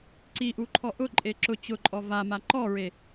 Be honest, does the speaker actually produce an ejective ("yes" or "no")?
yes